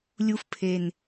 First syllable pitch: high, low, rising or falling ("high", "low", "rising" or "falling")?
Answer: high